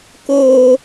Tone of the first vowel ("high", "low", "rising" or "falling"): high